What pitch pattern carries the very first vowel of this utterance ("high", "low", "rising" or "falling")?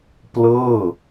falling